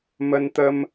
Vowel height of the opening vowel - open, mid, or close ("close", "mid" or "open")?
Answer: mid